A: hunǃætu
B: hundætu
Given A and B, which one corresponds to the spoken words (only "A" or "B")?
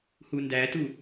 B